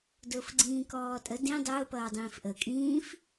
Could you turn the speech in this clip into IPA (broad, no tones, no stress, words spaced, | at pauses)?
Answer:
dʊːfɡ͡ǀĩːkɔːtʼə dĩ dˤʊː pʌːdˤĩːfʔə kʼĩːf